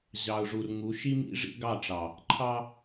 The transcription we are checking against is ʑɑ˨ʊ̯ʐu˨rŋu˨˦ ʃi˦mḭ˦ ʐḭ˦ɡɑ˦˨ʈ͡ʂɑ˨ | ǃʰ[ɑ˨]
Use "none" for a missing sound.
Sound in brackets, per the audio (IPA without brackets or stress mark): ɑ˦